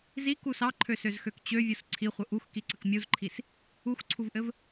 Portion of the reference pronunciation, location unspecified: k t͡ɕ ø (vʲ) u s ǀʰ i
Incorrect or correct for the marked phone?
correct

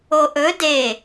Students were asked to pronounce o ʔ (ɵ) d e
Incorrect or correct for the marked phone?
correct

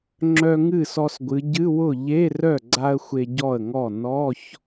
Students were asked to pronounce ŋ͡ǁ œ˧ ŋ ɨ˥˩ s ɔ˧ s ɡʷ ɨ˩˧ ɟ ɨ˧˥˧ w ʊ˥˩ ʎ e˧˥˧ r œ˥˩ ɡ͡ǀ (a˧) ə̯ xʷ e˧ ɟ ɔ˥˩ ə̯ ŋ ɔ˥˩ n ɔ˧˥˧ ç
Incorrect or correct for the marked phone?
correct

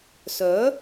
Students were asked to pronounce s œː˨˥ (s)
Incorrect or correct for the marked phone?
incorrect: none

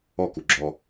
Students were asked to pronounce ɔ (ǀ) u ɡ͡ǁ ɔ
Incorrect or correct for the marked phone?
incorrect: k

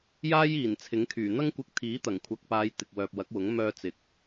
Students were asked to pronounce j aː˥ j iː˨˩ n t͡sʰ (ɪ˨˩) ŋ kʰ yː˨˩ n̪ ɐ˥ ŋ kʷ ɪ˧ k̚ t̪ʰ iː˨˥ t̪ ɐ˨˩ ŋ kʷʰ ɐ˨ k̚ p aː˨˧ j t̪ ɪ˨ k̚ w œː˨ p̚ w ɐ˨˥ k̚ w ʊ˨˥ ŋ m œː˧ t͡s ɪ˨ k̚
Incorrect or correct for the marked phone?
incorrect: ɪ˨˥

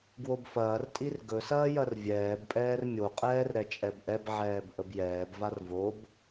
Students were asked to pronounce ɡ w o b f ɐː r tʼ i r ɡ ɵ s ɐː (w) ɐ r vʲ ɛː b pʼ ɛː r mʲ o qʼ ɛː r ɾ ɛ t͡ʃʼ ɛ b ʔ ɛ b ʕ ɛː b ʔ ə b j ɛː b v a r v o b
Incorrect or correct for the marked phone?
incorrect: j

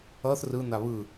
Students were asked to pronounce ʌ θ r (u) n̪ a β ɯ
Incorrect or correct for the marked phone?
incorrect: ɯ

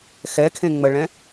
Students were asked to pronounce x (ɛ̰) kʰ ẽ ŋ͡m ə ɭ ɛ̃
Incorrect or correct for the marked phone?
incorrect: ɛ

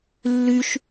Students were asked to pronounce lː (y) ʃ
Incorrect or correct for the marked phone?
correct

